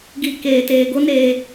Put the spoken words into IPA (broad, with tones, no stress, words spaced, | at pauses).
ɡi˨ keː˨teː˨ ɡo˦neː˧